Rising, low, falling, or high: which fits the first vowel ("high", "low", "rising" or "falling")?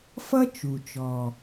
high